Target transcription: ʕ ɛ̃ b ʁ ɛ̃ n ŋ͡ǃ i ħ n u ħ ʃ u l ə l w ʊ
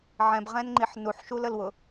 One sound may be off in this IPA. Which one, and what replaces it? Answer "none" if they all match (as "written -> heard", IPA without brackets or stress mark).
none